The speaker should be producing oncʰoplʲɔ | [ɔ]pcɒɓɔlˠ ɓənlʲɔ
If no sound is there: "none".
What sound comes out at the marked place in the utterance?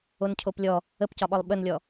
ə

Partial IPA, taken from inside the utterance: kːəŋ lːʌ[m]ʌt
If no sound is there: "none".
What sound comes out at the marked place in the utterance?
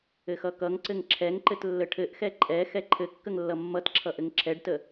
mː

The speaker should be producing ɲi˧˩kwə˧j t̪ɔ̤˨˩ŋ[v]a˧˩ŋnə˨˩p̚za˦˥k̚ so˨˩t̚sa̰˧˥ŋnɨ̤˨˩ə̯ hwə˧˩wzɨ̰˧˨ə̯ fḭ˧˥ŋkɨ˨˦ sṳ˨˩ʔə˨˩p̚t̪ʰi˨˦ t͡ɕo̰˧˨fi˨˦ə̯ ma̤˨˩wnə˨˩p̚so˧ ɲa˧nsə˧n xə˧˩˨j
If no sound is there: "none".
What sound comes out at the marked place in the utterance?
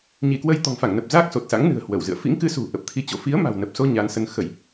f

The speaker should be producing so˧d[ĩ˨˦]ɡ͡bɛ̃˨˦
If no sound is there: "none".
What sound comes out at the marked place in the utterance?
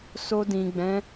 ĩ˨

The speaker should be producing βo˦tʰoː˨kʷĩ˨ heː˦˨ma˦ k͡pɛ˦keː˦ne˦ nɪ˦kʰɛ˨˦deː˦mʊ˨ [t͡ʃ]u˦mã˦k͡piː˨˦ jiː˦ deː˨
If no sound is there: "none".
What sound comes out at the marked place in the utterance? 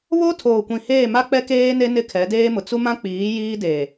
t͡s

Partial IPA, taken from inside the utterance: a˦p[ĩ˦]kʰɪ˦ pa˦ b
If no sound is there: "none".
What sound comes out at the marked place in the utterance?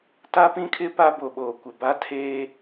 ĩ˦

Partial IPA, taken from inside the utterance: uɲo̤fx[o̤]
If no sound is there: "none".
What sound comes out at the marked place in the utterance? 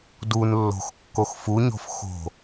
o̤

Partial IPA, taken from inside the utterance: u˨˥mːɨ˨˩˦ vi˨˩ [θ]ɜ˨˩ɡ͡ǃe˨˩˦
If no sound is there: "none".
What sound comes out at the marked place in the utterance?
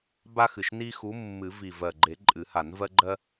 v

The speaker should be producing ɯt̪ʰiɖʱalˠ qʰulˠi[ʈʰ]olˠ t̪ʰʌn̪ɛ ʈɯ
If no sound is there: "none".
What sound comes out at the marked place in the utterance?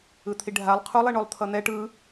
ɳ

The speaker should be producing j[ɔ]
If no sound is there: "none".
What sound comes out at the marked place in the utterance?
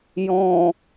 ɔ̃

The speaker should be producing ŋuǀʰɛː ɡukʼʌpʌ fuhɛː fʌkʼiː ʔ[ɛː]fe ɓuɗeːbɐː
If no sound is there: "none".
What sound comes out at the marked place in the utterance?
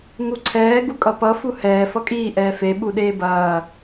ɛː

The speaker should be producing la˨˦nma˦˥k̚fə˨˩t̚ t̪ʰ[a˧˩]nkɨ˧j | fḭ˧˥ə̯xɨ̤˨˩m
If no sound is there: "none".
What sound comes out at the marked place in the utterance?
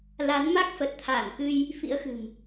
a˧˩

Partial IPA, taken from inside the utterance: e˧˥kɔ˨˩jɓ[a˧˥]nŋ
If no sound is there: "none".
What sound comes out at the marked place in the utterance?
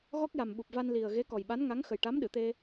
a˧˥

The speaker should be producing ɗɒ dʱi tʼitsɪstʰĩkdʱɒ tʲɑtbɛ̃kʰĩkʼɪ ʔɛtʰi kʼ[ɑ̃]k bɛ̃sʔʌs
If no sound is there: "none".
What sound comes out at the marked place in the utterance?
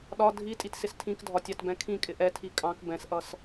ɑ̃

